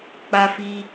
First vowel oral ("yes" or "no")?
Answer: yes